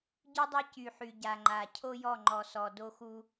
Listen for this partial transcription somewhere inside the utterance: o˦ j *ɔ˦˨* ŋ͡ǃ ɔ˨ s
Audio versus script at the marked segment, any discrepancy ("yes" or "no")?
no